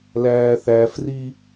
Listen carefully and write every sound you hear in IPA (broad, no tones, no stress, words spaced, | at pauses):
læːθæfri